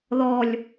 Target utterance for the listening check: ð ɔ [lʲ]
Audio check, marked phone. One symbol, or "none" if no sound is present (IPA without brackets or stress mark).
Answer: lʲ